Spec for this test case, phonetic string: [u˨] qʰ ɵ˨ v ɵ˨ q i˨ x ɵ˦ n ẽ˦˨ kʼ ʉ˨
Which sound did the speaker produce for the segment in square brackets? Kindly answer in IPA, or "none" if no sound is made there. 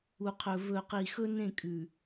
u˨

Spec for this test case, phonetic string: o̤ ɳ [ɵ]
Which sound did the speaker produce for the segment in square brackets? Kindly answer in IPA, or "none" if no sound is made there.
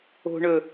ɵ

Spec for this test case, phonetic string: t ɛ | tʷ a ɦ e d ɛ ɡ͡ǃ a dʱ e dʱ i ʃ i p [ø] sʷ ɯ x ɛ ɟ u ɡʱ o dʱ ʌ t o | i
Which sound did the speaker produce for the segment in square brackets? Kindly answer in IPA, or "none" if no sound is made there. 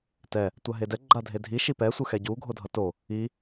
ɛ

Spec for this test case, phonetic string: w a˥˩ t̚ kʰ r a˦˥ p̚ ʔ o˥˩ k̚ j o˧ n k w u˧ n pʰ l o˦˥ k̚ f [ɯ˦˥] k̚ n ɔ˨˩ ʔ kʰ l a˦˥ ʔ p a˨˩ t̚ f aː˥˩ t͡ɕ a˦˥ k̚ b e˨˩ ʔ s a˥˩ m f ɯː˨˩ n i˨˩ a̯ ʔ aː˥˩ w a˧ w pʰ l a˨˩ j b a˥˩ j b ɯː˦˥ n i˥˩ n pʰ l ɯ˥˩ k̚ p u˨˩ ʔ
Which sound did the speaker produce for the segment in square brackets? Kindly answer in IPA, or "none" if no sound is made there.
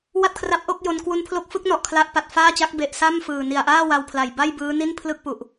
ɯ˦˥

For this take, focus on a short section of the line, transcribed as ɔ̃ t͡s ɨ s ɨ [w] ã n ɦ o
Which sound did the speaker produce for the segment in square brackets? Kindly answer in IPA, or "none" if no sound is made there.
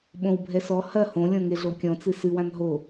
w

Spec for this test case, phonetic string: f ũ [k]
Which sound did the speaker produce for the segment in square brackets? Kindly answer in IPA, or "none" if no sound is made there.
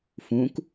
k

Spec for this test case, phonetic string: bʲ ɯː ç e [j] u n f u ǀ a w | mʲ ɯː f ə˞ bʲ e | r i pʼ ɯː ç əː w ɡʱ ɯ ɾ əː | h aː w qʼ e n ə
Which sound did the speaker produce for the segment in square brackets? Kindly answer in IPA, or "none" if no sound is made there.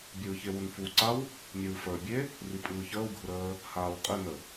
w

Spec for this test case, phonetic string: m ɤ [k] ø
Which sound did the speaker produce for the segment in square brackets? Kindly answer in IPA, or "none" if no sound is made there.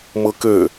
k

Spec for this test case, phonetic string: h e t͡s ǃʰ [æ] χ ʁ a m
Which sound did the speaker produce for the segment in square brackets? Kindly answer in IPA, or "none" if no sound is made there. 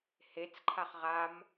a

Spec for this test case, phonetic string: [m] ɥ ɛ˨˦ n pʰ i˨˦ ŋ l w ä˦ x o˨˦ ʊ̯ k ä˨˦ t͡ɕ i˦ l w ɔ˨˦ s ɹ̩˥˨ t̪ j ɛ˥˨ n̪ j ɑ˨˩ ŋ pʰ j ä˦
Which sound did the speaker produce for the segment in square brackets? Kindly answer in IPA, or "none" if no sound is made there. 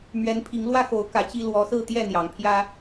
m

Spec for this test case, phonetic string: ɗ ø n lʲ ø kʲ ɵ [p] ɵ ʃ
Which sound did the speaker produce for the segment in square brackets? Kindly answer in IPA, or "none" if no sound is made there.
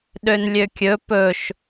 p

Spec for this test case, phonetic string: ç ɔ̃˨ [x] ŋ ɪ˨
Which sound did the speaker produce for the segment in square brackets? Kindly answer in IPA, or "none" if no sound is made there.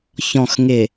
x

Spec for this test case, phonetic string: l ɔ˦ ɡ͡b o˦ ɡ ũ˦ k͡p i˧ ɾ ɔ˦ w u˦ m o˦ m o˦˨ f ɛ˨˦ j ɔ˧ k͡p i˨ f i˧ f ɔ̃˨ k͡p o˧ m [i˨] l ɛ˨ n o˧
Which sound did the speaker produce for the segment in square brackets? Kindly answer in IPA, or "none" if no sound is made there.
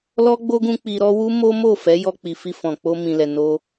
ĩ˨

